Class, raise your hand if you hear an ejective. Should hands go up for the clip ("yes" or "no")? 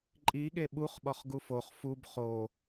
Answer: yes